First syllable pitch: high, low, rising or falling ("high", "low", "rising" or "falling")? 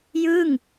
falling